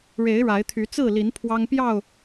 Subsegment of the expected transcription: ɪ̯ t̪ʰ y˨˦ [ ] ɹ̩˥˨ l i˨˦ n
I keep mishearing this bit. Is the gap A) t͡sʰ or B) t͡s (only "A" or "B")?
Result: B